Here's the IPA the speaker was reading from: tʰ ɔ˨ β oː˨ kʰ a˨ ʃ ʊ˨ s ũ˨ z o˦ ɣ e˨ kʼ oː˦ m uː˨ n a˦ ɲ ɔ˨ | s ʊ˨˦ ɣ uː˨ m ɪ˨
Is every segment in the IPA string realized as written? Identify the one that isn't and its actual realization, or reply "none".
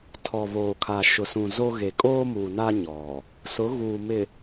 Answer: none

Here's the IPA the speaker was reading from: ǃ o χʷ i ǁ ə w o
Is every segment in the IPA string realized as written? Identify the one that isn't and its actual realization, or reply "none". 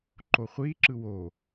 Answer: ə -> ɯ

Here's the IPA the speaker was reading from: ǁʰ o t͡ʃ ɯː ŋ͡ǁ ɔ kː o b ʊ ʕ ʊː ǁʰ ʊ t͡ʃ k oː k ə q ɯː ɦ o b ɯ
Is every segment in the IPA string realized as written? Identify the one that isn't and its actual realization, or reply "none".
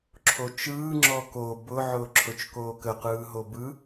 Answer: kː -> k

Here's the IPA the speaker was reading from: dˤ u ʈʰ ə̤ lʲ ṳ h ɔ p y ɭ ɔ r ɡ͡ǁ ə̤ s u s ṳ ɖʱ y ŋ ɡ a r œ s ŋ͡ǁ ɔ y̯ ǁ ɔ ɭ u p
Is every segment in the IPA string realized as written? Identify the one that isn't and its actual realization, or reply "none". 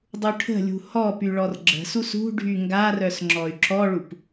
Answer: none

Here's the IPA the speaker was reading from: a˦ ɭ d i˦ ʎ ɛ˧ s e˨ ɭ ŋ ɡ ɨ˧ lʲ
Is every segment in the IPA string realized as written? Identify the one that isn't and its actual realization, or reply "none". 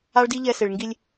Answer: ɨ˧ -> i˧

